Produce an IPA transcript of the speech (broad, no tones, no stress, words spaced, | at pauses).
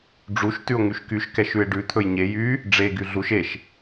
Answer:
ɖ͡ʐuʃ tʉo̯ŋyʃkyʃ kɛʃʉe̯ɖʉ t̪ʰɵjɲe jy | ɖ͡ʐe ɡyɮuʃ eʃ